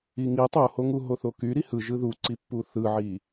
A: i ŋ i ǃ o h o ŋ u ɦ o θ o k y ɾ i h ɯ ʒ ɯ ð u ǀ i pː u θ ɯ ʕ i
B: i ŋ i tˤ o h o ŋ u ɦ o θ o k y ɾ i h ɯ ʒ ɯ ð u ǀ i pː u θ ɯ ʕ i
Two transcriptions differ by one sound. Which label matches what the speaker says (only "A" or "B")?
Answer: B